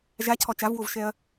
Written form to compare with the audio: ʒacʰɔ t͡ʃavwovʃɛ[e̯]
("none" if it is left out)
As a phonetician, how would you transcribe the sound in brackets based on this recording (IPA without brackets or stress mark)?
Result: ɐ̯